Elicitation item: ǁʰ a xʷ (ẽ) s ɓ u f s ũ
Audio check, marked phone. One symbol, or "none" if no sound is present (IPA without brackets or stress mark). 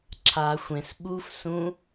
ẽ